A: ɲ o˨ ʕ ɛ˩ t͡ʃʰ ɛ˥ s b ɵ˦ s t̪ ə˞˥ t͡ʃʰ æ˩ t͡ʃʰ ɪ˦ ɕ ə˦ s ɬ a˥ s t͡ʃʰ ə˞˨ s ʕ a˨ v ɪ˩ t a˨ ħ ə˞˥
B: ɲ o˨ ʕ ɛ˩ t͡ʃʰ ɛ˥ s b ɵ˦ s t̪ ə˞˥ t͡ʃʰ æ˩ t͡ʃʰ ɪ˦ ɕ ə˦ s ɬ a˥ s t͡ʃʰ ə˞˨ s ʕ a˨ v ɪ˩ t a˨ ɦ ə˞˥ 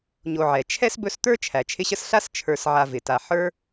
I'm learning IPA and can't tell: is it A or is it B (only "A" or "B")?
A